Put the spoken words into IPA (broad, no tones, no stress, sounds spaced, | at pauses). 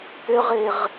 t̪ ʏ ʁ e ʁ